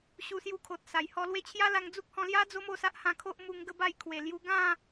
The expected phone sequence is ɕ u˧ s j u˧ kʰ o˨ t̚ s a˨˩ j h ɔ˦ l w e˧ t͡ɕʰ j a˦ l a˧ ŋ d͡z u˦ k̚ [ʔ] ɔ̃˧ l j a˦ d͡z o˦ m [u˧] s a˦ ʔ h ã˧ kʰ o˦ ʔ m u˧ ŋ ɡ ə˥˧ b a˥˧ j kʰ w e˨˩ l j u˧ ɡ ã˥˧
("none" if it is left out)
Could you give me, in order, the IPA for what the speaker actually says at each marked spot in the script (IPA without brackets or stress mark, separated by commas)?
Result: h, o˧